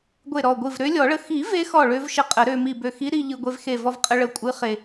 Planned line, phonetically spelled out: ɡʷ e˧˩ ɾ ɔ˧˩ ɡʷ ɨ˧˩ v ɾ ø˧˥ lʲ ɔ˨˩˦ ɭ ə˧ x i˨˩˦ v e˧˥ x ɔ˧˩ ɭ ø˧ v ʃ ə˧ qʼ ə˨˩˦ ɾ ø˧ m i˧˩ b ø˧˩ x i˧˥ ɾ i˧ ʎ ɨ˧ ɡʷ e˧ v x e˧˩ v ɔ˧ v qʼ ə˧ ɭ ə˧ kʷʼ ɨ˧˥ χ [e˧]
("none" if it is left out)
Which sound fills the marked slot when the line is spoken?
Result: e˧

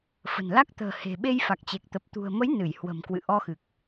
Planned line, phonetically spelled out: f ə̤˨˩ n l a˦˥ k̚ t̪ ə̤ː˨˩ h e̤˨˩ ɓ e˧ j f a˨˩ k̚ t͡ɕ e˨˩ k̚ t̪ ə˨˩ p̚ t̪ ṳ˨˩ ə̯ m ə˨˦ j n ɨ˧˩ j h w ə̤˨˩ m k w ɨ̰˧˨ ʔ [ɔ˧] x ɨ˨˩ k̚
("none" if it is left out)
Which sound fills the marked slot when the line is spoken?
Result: ɔ˧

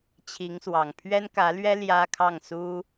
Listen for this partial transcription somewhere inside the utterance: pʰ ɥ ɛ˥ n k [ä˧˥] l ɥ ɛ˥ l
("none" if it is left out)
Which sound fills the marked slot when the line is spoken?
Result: ä˧˥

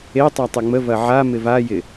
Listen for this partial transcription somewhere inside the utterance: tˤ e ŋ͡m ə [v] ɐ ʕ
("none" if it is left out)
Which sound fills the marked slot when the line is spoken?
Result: v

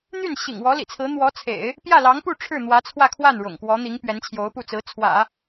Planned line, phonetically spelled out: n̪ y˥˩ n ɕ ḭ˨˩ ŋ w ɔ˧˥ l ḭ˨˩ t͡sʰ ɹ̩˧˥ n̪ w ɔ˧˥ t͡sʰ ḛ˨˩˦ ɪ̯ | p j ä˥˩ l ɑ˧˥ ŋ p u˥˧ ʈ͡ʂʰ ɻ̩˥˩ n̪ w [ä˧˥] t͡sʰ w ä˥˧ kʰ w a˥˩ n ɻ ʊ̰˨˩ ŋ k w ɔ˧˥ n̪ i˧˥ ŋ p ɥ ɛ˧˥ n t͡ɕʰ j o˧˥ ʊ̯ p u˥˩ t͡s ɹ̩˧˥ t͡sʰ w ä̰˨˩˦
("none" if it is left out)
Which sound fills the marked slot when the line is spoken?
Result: ä˧˥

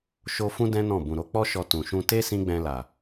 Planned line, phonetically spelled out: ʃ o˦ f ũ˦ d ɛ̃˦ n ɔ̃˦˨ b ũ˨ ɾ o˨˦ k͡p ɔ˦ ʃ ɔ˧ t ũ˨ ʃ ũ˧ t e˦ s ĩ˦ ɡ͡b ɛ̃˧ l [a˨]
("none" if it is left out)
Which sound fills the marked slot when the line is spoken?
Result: a˨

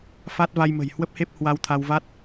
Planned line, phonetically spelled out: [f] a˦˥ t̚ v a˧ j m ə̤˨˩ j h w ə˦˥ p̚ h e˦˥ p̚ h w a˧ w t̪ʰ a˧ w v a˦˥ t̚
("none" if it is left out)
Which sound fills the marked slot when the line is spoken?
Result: f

